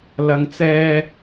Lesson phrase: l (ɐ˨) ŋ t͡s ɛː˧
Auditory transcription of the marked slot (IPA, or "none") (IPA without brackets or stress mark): ɐ˨